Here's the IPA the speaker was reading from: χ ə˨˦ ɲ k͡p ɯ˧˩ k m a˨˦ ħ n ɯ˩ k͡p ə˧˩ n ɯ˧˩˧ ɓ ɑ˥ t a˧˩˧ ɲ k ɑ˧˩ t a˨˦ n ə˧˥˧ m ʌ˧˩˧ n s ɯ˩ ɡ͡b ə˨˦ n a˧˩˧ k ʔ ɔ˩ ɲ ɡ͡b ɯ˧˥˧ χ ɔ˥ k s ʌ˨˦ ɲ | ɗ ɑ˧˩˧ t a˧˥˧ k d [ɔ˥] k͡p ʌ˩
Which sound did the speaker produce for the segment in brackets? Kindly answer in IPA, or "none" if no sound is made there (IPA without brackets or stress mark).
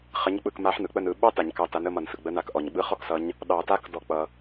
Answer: ɔ˧˩˧